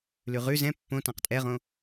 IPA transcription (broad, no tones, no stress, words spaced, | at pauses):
lʉʁʉ zɛ̃ pːõ tãqtʼɛʁõ